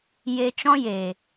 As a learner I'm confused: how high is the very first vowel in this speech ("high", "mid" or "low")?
mid